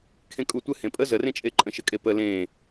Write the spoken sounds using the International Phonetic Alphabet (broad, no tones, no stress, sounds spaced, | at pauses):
kʰ ẽ kʼ u tʷ ɘ h ẽ pʼ ə z ə r ẽ t͡ʃʼ e ǃʼ ə̃ ʃ ə kʼ e p ə l ẽ